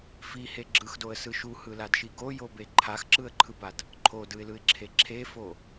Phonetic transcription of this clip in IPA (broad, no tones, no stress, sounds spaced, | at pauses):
f i h e ɡ͡ǁ ɯ x d o ə̯ s ɯ ʃ u h ɯ l a d ʃ i ɡ o j o b e ǃʰ a x ǁ ɯ ə̯ ǃʰ ɯ b a d | ǃʰ o d ɯ ɪ̯ l ɯ ɪ̯ ǁʰ e ǁʰ e f o